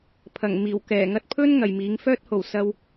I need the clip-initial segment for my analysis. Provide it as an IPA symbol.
pʰ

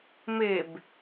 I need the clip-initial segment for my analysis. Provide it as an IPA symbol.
m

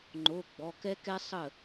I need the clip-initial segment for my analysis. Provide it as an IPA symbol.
ŋ͡ǃ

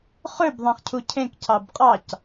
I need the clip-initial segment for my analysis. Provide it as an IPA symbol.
χ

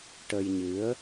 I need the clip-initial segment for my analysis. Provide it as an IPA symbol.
ʈ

